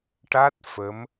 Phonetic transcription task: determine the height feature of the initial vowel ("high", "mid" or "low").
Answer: low